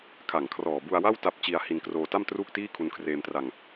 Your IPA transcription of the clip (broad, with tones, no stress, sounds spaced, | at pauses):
kʰ a˨˩ ŋ kʰ r ɔː˨˩ b u˧ a̯ w a˥˩ w t a˦˥ p̚ t͡ɕ i˧ a̯ h i˧ n k r oː˧ t a˥˩ m t r uː˥˩ k̚ t iː˥˩ kʰ u˧ n kʰ r eː˧ m t r a˧ ŋ